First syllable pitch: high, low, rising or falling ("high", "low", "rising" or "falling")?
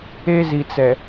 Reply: high